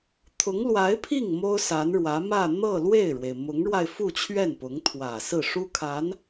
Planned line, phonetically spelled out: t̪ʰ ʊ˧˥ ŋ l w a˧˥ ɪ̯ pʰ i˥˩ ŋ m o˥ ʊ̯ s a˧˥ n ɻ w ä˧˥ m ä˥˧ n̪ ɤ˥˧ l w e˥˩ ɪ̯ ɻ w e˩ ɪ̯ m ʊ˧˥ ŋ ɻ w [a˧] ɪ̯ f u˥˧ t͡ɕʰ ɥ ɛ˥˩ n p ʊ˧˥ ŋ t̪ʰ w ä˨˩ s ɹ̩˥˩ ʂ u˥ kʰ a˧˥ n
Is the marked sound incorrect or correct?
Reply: correct